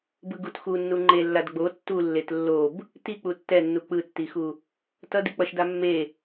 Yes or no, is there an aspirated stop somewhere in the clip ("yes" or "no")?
no